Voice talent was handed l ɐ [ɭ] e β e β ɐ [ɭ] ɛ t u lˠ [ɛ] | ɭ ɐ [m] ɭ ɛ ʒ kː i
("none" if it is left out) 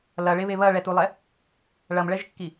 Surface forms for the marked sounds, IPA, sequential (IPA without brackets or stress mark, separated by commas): ɭ, ɭ, ɛ, m